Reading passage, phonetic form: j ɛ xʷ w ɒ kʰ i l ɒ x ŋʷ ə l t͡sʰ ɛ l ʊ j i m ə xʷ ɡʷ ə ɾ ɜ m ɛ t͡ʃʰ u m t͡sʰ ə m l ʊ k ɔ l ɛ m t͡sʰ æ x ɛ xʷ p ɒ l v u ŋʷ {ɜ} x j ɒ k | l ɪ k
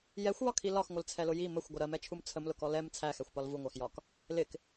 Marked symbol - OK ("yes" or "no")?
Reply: no